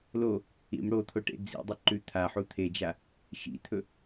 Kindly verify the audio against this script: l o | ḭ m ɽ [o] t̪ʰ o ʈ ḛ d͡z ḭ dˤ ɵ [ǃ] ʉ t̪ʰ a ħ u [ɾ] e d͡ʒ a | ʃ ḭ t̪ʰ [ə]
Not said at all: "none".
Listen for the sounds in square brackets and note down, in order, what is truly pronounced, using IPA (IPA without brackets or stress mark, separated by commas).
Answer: o, ǃ, t̪ʰ, ɵ